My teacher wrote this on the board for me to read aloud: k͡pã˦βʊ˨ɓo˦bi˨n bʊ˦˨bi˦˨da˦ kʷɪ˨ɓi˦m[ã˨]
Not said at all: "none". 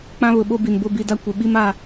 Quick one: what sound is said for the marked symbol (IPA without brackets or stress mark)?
a˨